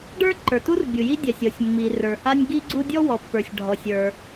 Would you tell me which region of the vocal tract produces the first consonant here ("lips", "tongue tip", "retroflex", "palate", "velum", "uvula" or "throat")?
retroflex